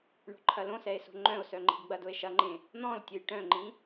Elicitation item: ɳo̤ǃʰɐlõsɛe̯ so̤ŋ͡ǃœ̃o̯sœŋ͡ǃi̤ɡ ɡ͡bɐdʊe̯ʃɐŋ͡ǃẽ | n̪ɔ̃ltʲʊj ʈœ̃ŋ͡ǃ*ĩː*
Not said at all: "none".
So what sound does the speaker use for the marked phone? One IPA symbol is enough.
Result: ĩ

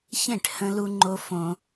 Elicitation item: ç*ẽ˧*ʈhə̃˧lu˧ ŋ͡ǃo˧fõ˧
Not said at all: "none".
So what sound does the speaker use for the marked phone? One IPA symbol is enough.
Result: ẽ˦˨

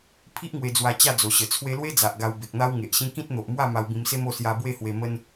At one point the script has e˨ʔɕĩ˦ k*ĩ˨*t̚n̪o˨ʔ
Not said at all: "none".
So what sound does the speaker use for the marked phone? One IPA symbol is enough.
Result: ĩ˦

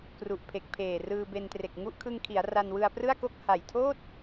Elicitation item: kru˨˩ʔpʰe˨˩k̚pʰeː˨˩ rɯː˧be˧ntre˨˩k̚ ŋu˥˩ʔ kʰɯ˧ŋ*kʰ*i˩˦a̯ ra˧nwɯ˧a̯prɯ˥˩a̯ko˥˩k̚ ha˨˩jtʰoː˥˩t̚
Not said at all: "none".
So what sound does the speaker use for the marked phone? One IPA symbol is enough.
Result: kʰ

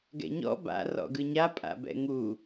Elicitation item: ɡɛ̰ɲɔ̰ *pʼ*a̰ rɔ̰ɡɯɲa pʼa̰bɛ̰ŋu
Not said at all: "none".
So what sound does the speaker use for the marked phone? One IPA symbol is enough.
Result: b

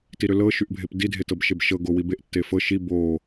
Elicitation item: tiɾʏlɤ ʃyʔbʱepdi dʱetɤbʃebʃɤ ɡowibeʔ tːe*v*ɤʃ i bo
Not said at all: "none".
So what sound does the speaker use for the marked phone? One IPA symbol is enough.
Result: f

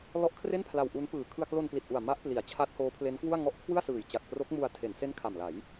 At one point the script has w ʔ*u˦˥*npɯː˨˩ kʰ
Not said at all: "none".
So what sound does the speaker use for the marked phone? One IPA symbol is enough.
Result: u˦˥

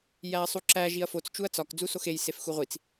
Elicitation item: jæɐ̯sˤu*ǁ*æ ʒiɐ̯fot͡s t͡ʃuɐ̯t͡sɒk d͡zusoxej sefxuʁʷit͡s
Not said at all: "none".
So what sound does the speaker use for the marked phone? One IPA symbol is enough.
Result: ǁ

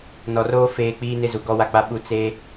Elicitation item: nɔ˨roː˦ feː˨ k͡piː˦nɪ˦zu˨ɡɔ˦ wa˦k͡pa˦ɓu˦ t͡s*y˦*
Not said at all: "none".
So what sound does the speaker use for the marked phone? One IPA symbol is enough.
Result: e˦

